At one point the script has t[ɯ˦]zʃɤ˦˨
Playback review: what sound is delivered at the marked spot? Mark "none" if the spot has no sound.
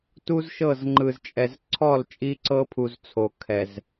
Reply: u˦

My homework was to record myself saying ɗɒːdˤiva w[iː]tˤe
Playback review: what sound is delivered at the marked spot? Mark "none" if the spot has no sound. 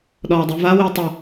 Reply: iː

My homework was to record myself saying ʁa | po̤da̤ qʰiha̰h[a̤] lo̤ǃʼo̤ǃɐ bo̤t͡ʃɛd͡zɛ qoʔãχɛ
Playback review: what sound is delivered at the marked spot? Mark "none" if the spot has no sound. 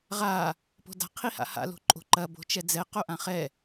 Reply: a̰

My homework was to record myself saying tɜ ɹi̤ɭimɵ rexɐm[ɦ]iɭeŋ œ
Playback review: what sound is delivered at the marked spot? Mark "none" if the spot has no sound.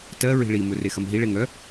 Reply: ɦ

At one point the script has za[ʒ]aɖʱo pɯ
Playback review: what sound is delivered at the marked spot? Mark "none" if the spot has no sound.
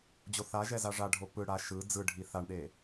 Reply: ʐ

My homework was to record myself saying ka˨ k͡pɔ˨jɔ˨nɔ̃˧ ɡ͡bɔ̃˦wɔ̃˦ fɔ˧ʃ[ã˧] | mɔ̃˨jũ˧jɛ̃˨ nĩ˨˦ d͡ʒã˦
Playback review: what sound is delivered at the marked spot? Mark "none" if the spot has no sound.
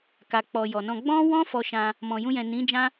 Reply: ã˧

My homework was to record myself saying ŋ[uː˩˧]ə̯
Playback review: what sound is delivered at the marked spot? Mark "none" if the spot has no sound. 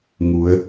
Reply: u˩˧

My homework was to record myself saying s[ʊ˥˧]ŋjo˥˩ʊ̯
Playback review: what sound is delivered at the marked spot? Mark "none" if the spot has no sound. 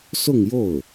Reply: ʊ˥˧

